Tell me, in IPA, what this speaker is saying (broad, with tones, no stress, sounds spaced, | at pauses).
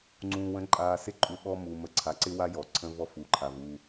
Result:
ŋ͡ǀ ũː˨ w ə̃˨˦ ǃʼ aː˨ s ɪ˦ ǃʼ u˨ ɓ ɔ˦ m u˨ m ə˨ ǀʰ a˨ ǀ ɪ˦ w a˦ j ɔ˨ ǀʰ ə̃˦ v ɔ˦ f u˨ ǃʰ a˨ v u˨